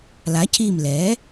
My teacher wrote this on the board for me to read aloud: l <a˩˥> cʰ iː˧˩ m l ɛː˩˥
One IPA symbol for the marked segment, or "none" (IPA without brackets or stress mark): a˩˥